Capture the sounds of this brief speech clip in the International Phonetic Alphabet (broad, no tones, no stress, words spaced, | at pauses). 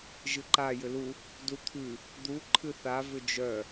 ʒɨǃa jʏlu | dut̪ʰʉ | d̪u ǃʰɨθa vʏd͡ʒœ